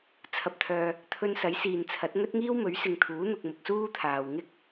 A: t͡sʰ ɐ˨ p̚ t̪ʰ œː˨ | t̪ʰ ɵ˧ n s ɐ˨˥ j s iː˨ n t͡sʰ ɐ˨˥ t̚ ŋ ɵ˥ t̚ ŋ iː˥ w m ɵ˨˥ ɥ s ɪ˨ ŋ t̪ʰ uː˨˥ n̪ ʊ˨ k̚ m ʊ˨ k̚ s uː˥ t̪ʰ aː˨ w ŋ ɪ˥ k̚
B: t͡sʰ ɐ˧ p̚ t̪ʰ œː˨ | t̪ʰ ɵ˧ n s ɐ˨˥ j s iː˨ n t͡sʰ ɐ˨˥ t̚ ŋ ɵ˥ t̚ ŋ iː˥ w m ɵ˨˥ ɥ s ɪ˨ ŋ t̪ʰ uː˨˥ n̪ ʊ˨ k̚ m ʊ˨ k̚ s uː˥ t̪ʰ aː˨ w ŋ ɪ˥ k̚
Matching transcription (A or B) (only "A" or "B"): A